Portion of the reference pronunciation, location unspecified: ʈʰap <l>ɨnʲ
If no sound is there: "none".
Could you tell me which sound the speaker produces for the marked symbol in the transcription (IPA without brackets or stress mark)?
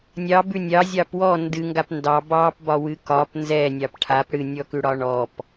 ɽ